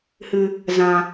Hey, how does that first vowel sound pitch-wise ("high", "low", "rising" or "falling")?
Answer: low